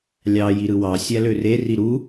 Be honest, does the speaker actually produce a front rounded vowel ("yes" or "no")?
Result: yes